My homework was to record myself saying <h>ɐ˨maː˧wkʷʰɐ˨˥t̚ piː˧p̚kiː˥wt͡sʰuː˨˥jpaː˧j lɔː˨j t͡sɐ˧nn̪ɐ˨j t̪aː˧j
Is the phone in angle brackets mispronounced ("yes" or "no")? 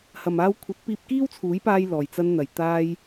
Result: no